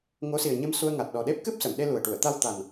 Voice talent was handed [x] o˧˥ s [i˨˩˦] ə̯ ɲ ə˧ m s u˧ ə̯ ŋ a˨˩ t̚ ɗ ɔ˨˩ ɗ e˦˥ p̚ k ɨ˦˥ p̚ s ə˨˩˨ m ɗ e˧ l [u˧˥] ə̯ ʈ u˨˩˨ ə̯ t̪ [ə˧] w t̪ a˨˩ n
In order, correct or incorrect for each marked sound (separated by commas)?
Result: incorrect, incorrect, incorrect, incorrect